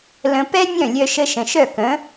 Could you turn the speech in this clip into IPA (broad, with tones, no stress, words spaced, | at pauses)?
lə̃˧ pɛ˥nʲœ̃˥˩ lʲœ˧ʃə˧ ʃə̃˩ʃœ˥˩kə̃˩˥